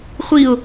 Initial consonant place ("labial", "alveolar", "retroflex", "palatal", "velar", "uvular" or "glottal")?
uvular